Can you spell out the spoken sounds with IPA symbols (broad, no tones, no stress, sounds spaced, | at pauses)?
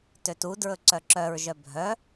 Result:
t ø t u d ɹ ɵ ǀ œ ǁ œ ɹ ʒ œ bʱ œ